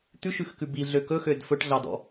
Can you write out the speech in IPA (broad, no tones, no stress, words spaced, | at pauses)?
t̪ʉʃʉxkʉ biɮø kɵxød fɵʈɮɑdɔ̰